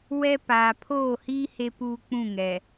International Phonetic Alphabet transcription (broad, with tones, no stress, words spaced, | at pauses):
wɛ˦ paː˨pʰoː˦˨hiː˦ he˦puː˦k͡pũ˦˨ ŋɛ˨